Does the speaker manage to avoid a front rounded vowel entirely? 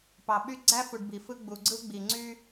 no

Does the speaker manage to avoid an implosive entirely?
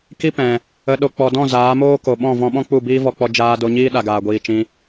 no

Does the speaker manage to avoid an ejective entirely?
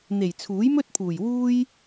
yes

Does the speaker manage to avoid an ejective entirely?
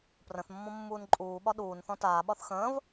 no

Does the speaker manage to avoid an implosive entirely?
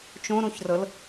yes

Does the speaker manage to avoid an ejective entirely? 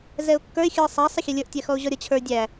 yes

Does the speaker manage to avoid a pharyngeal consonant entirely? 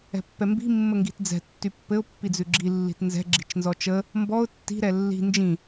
yes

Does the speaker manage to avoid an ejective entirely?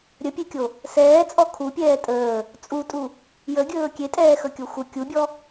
no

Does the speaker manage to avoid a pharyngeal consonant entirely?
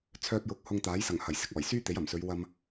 yes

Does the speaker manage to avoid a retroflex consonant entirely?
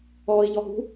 yes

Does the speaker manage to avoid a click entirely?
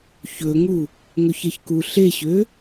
yes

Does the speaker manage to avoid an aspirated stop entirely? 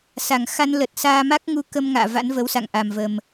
yes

